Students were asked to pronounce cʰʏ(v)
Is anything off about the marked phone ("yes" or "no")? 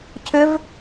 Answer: no